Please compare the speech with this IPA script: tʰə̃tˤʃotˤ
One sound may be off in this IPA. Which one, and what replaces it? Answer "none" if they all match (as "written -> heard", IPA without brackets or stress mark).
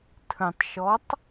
o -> ɔ